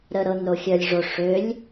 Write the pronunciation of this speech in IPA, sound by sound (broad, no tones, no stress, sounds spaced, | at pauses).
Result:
ɾ ə ɾ ɤ n ɾ o xʲ œ lʲ ʐ o ʂ ø lʲ